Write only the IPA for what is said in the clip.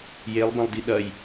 jelˠbɐ̃lˠdi ɗɐj

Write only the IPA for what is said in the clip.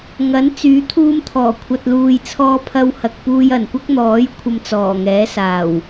ŋɐ˨˥n t͡syː˨˥t̪ʰuː˧mt̪ʰɔː˨˩kʷʰɐ˨t̚ luː˨jt͡sʰɔː˧ pʰɐ˧whɐ˨k̚puː˧j ɐ˨˩nkʷɐ˥k̚n̪ɔː˨˥j kʷʰɐ˧mt͡sɔː˨˩ŋɛː˨˥saː˨˩w

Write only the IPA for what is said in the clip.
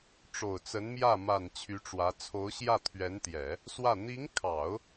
ʈ͡ʂo˨˩ʊ̯t͡sə˧˥nmjä˥˩ ma˨˩n t͡ɕʰy˧˥ʈ͡ʂwä˧˥ t͡sʰo˧˥ʊ̯ɕjä˥˩t̪ʰɥɛ˧˥nt̪jɛ˨˩˦ | swä˥˩ n̪i˧˥ŋkʰɑ˨˩˦ʊ̯

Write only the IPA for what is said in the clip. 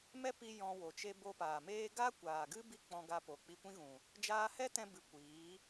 mɛ˦ pi˧ jɔ̃˧wo˨t͡ʃe˦ bo˧paː˨meː˦ ɡa˦kʷaː˨ɡɨ˦ bi˦k͡pɔ̃˧ɡa˧po˨ k͡pi˧kʷĩ˦ɣũ˨ | d͡ʒaː˧hɛ˦tɛ̃˧bɨ˨ kʷiː˨˦

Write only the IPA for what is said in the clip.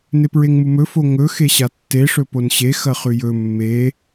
nepɹeŋmumɵ foŋɵ xeɕatːe ʂɵponɕe xɐχʉjɵ mːe

